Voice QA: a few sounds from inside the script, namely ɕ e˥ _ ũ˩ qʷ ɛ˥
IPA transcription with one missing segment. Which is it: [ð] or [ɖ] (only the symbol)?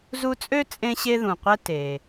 ð